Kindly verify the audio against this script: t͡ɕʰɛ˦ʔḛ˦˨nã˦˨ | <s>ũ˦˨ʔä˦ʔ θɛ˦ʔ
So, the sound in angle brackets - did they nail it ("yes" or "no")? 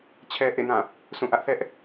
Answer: yes